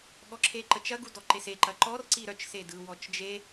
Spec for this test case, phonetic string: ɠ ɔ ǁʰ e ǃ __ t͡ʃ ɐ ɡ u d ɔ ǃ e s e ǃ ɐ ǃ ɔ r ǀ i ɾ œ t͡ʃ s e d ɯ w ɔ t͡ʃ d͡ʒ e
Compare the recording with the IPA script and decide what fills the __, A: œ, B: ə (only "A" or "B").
B